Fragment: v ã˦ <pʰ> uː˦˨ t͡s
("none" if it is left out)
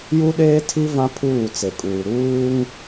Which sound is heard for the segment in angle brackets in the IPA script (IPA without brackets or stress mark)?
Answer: pʰ